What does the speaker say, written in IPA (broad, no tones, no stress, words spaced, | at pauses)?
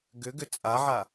ɡʏɡʏ t͡sʼaʕa